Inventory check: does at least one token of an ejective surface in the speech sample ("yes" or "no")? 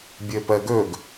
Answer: no